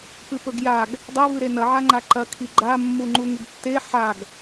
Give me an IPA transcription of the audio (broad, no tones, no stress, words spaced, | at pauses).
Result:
pɨpɵɡjaɡ | dˤevɨ ɾenɐʕaŋ͡ǃa ǃɐkʰi ɡ͡ǃamːu ŋ͡ǃuŋɨɡtːe ħaɡ